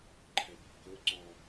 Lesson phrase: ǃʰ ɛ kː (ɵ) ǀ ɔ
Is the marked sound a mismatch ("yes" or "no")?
no